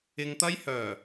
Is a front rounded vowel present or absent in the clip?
present